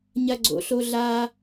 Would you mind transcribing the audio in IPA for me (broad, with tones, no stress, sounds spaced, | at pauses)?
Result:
ɲ ɐ˥ ɡ͡ǀ o̰˧˥ ɬ o˥ ɮ a˥